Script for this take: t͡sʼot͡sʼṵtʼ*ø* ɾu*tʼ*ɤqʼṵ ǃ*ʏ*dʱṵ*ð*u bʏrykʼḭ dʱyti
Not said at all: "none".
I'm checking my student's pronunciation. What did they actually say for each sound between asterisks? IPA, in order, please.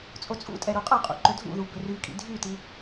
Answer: ɛ, qʼ, ʏ, ð

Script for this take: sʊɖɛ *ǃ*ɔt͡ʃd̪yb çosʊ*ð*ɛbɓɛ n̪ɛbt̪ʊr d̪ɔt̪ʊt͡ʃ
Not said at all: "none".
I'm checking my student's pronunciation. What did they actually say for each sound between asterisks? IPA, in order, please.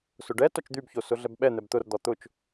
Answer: t, ɮ

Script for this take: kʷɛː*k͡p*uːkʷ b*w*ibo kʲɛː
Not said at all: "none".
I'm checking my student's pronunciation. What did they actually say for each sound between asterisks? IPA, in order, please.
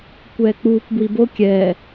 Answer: k͡p, w

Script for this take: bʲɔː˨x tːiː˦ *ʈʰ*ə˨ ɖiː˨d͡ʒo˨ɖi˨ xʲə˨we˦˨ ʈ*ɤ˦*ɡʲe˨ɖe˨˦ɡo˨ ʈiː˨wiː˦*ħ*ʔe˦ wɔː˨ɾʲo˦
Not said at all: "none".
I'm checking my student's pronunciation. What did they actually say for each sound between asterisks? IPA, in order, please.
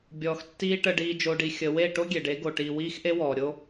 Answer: ʈ, o˦, x

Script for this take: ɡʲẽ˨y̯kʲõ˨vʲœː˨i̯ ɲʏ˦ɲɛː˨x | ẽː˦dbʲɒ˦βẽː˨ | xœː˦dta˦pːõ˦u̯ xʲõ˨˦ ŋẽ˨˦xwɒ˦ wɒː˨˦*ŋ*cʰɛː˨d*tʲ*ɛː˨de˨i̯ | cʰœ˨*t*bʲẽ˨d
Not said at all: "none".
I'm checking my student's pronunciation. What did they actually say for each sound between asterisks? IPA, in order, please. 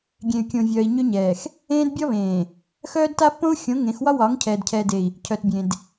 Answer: ŋ, cʰ, t

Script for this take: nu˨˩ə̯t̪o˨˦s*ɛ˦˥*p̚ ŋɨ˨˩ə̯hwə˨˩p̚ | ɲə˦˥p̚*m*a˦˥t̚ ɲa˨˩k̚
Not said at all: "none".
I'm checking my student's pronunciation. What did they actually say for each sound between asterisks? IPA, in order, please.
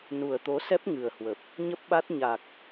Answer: ɛ˦˥, ɓ

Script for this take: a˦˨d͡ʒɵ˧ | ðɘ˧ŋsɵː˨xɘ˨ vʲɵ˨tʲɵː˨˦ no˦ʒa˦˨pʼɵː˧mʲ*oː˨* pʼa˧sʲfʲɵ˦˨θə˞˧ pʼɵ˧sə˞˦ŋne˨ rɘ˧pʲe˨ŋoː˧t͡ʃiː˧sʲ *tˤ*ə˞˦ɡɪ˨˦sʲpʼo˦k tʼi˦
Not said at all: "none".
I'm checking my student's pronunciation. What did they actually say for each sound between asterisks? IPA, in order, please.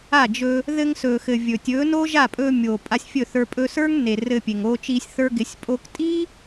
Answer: oː˨, θ

